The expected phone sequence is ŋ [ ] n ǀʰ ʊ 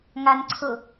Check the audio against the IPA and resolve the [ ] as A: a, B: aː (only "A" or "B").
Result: A